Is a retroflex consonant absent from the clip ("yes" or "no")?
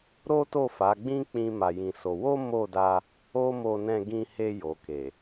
yes